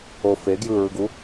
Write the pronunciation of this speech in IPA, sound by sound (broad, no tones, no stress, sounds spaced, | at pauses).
o f e ɡ j ɯ ɹ ɯ ɡ u